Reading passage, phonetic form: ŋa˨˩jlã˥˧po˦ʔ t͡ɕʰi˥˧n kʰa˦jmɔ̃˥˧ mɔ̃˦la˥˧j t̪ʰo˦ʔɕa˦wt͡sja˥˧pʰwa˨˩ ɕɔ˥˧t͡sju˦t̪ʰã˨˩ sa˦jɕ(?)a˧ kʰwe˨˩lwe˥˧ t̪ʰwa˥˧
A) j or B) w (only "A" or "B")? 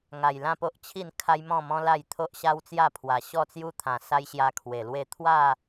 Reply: A